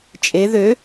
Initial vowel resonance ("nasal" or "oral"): oral